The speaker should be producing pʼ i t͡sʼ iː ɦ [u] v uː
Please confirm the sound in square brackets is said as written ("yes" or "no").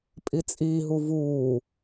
yes